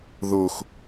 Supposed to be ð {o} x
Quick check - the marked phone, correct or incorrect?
correct